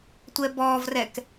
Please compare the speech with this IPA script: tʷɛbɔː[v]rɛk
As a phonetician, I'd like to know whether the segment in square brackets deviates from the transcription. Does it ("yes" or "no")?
no